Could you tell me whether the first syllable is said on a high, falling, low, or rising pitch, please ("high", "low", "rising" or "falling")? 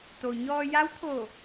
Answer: low